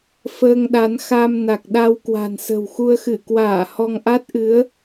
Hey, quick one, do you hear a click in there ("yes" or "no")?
no